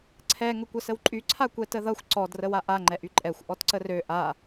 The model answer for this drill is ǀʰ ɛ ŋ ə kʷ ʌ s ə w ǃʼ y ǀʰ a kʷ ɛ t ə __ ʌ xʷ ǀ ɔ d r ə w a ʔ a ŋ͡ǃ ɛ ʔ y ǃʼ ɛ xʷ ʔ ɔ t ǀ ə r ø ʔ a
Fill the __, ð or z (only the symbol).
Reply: ð